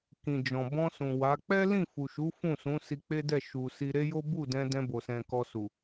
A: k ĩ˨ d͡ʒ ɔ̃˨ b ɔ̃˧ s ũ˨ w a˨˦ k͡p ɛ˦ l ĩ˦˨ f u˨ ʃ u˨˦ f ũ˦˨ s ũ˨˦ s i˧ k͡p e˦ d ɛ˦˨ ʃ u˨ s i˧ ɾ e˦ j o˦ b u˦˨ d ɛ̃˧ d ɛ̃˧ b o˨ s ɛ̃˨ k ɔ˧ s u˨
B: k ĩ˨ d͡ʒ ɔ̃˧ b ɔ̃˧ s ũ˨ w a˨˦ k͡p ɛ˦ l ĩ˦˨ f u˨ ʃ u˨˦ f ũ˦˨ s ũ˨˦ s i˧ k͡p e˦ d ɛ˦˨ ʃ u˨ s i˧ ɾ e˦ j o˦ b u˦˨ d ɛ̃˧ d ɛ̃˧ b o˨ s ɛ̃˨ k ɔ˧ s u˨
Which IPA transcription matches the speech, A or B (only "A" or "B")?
A